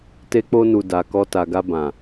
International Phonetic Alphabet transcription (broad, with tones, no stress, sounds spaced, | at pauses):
t e˧ k͡p o˧ n u˨ d a˨ k ɔ˧ t a˨ ɡ a˧ b ã˨